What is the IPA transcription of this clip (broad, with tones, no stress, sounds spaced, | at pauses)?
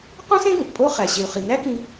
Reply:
q ũ˥ s ẽ˥ ɡ ũ˩ ʔ pʼ o˥ χ æ˩ ɕ e˩ u̯ χ i˩ n æ˥ k ĩ˧